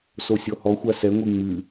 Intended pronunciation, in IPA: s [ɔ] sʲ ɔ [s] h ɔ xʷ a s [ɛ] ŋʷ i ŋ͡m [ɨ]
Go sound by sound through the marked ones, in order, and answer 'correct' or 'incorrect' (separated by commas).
incorrect, incorrect, correct, correct